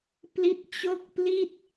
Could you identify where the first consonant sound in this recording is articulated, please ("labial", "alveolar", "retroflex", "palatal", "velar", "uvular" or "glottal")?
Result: labial